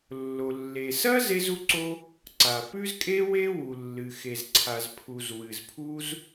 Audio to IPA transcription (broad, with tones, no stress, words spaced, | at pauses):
lːo˩ lːe˩sɐ˥ ze˥zu˥ǀo˥ | ǀa˩pʉ˥zkʼe˥ we˥wu˩ lːɨ˩xe˩zǀʰa˩z pʰu˩z wɨ˩zpʰu˥z